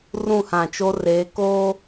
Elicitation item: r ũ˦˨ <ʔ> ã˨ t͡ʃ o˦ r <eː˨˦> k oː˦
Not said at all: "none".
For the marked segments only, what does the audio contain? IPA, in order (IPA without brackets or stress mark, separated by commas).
h, eː˨˦